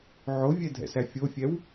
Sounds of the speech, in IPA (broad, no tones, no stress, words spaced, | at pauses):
ʕovʲɛdʱɛ̰sæ fʲofʲɛw